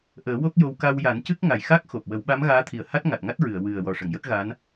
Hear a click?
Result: no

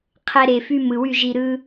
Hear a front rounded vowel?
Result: yes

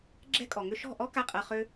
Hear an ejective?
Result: yes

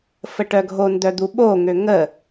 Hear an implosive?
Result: yes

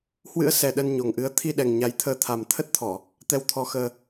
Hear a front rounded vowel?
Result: no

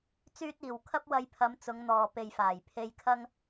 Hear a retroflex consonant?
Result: no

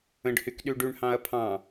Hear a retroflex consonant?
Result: yes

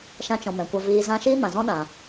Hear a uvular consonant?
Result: no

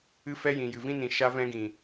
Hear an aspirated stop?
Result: no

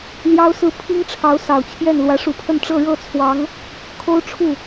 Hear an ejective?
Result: no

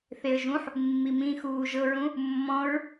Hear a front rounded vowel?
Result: no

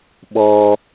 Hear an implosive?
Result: yes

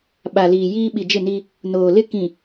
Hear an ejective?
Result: no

